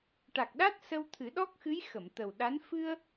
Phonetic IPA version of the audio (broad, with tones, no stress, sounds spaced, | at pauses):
ʈ a˨˩ k̚ ɗ a˦˥ t̚ s ə˧ w t̪ʰ ɨ˨˩˦ ɗ ɔ˦˥ k̚ x ɨ˧˥ j x ə˨˩˨ m t̪ ə˨˩ w ɗ a˧˥ n f ɨ˧ ə̯